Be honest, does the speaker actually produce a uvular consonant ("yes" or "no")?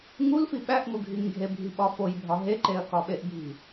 no